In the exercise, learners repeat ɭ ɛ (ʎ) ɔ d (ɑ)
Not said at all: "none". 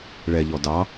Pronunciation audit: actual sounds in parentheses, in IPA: ʎ, ɑ

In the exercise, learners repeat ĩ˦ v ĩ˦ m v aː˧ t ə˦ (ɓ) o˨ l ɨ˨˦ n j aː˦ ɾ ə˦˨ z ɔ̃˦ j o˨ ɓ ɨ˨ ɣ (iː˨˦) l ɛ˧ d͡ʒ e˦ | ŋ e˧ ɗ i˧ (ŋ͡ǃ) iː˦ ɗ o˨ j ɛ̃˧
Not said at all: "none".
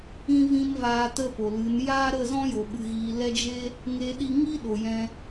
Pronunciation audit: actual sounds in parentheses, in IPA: p, iː˨, ŋ

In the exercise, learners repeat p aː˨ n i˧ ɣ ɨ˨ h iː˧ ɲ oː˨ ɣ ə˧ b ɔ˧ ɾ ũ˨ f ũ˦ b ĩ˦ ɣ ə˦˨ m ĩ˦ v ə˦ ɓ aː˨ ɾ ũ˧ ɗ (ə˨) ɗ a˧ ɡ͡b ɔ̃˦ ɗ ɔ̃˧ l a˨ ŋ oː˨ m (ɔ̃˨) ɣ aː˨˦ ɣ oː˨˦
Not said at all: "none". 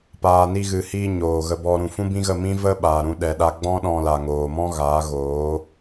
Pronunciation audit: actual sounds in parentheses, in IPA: ɛ˨, ɔ̃˦

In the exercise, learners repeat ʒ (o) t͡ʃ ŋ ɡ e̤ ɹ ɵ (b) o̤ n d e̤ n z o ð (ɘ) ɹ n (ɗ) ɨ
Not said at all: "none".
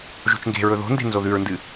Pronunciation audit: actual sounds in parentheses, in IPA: o̤, ð, ʉ, d

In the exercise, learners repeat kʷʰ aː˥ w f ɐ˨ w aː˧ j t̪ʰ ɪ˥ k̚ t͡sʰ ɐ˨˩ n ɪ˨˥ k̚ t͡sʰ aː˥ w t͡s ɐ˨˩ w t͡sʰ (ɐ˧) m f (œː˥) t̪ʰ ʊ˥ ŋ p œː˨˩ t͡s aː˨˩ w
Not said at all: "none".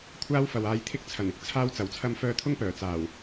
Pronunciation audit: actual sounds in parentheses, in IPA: ɐ˧, œː˧

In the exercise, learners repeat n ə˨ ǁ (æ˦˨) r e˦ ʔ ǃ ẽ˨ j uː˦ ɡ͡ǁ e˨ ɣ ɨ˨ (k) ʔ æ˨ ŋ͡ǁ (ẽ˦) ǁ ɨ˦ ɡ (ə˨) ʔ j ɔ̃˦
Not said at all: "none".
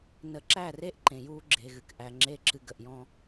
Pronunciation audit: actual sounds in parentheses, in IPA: æ˦˨, k, e˦, ə˨

